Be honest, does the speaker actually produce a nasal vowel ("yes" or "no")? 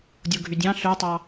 yes